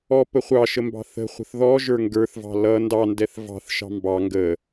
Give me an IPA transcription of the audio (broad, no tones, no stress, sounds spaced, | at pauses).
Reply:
ɔ p ə χʷ ɑ ʃ ə m b ɑ̤ θ ə̤ χʷ ə̤ θ ð ɔ ʒ ə˞ ŋ ɡ ə˞ θ v ɑ̤ l ʌ n d ɑ n d ɛ θ v ɑ̤ θ ʃ ɑ̤ m b ɑ ŋ ɡ ə